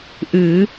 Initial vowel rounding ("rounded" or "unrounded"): unrounded